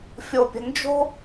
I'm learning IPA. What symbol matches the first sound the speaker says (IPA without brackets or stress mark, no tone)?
fʲ